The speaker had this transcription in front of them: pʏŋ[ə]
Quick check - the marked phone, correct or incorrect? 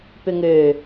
incorrect